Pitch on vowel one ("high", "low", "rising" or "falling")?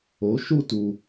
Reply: rising